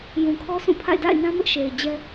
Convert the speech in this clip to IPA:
j ũ˨ kʰ ɔ˦ sʰ ũ˦˨ pʰ a̰˦˨ ɪ̯ d a̰˦˨ ɪ̯ n ã˦ m ɪ˦ ʔ ʃ e˨ ɪ̯ d͡ʑ ɛ˦

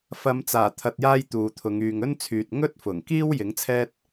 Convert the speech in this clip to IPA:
f ɐ˨˧ m t͡s aː˨˩ t̪ʰ ɐ˨ t̚ j aː˥ j t̪ uː˨ t̪ʰ ʊ˨˧ ŋ yː˨ ŋ ɵ˥ n t͡sʰ yː˨ t̚ ŋ ɵ˥ t̚ f ʊ˨˩ ŋ k iː˥ w j ɪ˨˥ ŋ t͡sʰ ɛː˥ t̚

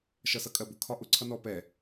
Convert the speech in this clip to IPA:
ʃ ʌ s ʌ kʼ ɜ b ʊ kʰ ɒ ʔ ʊ ǀʰ ʌ n ɔ p ɛ

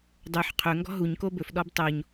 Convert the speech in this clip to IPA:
dˤ ø ħ qʰ ɵ ŋ ɡ ɔ̤ ɦ u ɲ k o b ɵ f ɗ ɔ b tˤ o ɲ

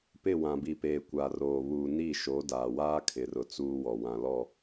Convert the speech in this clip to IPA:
p ɪ˦˨ w ã˨ b i˨ p eː˨ kʷ a˨ r oː˨ β uː˨ n i˦˨ ʃ o˨˦ d aː˨ w aː˦ kʰ ɪ˨ r ʊ˨ t͡s uː˦ w ɔ˨ w ã˨ l ɔ˦˨

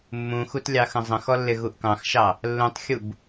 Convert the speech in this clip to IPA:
mː ũ x u t lʲ ɑ x ə̃ zˤ ə̃ x ɔ lː ɪ ɣ u ʔ k ɑ̃ x ʃ ɑ | lː ũ tˤ xʲ u b

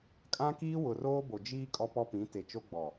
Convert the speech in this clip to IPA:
kʼ ã˦ k iː˦ w ʊ˨ r oː˦ b o˨ d͡ʒ iː˦ kʼ ɔ˦ p ɔ˦ p ĩ˨˦ t e˨ t͡ʃ o˦ ɡ͡b ɔ˨

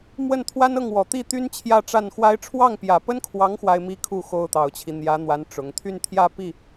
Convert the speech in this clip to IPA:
m w ə˥˩ n t̪ʰ w a˥ n ɤ˥˩ ŋ w ɔ˨˩ t̪ i˥˩ t̪ y˥ n t͡ɕʰ j ä˥˧ ʈ͡ʂ a˥˩ n x w a˥ ɪ̯ ʈ͡ʂʰ w ɑ˥˩ ŋ p j ä˨˩ p ə˥ n kʰ w ɑ˧˥ ŋ x w a˥ ɪ̯ m i˥ kʰ u˥˩ x o˥ ʊ̯ t̪ ɑ˨˩ ʊ̯ t͡ɕʰ i˦ n̪ j ä˧˥ n̪ w a˧˥ n ʈ͡ʂ ʊ˧˥ ŋ t̪ʰ y˥˧ n t̪ʰ j ä˥˧ p i˥˩

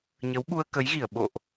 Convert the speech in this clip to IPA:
ɲ ə˨˦ w ɓ u˧ ə̯ k ə˨˦ j ɣ i˧˩ ə̯ ɓ o̰˧˨ ʔ

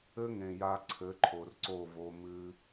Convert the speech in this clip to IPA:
ɘ˧ ŋ ẽ˨ j a˧ ǀʰ ɘ˨˦ ǃʰ o˨ r ǀ o˦˨ v o˧ m ɨ˧

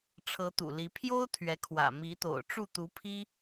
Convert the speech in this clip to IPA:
ʈ͡ʂʰ ɤ˧˥ t̪ ṵ˨˩ l i˧˥ pʰ j o˥ ʊ̯ t̪ʰ ɥ ɛ˧˥ kʰ w ä̰˨˩ m i˧˥ t̪ o̰˨˩ ʊ̯ ʈ͡ʂ u˥˩ t̪ u˧˥ pʰ i˥

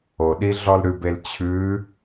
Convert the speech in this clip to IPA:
o ɗ i ɮ ɔ l ɾ ʉ b e l t͡ɕʰ ʉ

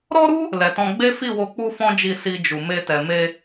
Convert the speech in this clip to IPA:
ɾ ɔ˦ ɾ u˦ | l ɛ˨ t ɔ̃˧ ɡ͡b e˦ f i˦˨ w o˧ k͡p u˦ f ɔ̃˦ d͡ʒ i˧ s i˧ d͡ʒ u˨ m e˧ t ɛ˨ m e˧

